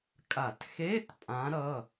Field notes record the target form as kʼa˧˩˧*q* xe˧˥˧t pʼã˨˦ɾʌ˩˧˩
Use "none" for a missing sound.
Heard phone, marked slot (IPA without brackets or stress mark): t